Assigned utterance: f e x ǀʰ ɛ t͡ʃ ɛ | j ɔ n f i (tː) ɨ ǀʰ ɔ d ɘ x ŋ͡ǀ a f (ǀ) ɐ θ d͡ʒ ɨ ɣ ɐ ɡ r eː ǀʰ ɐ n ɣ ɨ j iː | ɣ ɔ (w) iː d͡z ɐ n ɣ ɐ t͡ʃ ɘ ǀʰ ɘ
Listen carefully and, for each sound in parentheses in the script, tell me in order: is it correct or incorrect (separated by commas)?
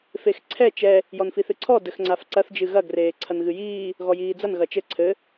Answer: incorrect, correct, incorrect